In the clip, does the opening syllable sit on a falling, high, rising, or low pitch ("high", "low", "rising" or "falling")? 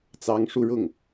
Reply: rising